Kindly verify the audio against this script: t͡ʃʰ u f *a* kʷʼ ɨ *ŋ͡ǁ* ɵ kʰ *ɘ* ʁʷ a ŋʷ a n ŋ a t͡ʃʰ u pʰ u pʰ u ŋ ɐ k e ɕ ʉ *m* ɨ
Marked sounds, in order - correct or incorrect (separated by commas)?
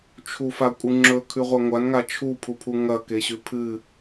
correct, correct, incorrect, incorrect